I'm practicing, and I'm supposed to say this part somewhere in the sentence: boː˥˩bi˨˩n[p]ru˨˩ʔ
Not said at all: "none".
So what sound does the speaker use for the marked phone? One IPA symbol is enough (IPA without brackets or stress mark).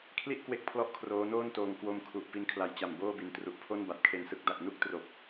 t